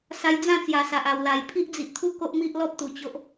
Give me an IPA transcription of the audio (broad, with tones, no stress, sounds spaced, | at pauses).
s a˧ j d͡z ã˥˧ t͡s j a˨˩ s a˨ ʔ a˨˩ w l a˨˩ j pʰ i˦ ʔ d͡z i˨ ʔ t̪ʰ u˦ k o˦ ʔ m i˦ ʔ l ɔ˦ p̚ t̪ u˨˩ t͡ɕ o˦ ʔ